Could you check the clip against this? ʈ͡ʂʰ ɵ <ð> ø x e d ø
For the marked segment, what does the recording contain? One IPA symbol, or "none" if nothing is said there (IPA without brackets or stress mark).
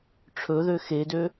ð